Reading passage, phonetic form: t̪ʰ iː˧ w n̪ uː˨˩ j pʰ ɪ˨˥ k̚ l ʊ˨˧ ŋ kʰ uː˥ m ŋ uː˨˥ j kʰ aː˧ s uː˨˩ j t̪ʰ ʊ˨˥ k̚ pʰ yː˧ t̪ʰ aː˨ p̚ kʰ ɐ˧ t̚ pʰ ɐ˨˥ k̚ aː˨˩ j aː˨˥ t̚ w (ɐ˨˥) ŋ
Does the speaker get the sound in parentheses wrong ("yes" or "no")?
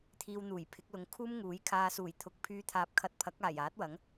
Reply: no